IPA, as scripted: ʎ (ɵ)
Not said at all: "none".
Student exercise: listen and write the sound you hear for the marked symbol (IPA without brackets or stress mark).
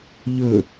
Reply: ɵ